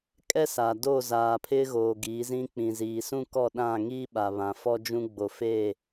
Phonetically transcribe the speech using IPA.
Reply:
kʼɛ˦sa˨ do˦˨zaː˨ pʰɪ˦ɣoː˨ɡiː˨˦zĩ˦ k͡pĩ˨ziː˨sũ˦ kɔ˦˨ɗã˦˨ ŋiː˦ɓa˨ βã˨fɔ˦d͡ʒũ˦ ɡ͡bo˨fe˦˨

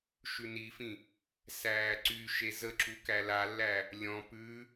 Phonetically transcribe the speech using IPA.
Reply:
ʃʉnifĩ | sæːǀyʃe zəǁu kælalːæ | lʲɔ̃ pʉ

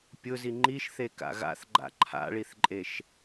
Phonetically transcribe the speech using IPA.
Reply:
pʲʊzi ŋ͡ǃiʃθeka̰ ɣa̰θɡ͡ǃa̰ ǃʰa̰ɭiθǃʼeʃ

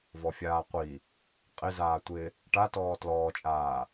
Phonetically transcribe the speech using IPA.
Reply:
vɔfʲaːqʷi | qʼɪzaː tʷɪ | ʈatɔː tlɔːt͡ʃʼaː

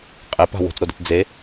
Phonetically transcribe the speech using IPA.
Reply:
qʼepa̤ wo̤t͡sɾode̤t d͡ze

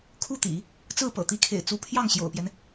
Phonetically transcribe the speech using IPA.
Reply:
kʰu˥˩t̪ḭ˨˩˦ | t͡sɹ̩˥˩pɤ̰˨˩t̪i˧˥kʰḛ˨˩ɪ̯ t͡su˧˥pʰjɑ˥˩ŋɕjo̰˨˩ʊ̯pjɛ˦n

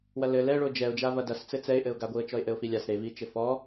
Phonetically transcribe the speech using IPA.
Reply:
wɐlɘ lɛɭo d͡ʒɛʊ̯d͡ʒa vɐdɐst͡sɘ t͡sɛɪ̯ʔɘʊ̯ɡaɡʷiə̯ t͡ʃɔɪ̯ʔɘʊ̯filʲas ɾevit͡ʃɘ fɔ

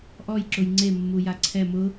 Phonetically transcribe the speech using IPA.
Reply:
ʔɔjǁʊj ŋ͡ǀemːuja ǀʰɛ mʊ

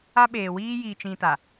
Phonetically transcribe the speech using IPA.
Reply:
a˦ɓeː˨ wiː˦ jiː˨t͡ʃĩ˨ ta˨

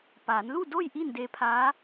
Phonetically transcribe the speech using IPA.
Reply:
paː˩˧n lu˥˨ do˥˨j ʔiː˥˨ndeː˧pʰaː˧˥

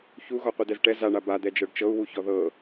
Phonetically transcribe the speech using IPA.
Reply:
çuɣɔ qʷidɛzʈɛ zaɳa bad̪ɛ d͡ʒɤɖt͡ʃɤu̯ wuçɔðɤ

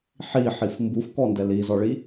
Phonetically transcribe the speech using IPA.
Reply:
ħiħif mbufkɔndɛ lizɔɭi

